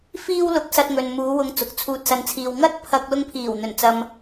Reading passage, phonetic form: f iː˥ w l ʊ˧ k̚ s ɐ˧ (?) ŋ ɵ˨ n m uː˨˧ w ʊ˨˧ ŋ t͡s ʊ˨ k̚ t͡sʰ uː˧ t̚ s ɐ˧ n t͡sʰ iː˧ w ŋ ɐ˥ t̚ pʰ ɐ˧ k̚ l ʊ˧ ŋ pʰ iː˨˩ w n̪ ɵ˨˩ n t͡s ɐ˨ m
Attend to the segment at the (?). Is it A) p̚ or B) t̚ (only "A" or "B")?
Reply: B